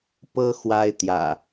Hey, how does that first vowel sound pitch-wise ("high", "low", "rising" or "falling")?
high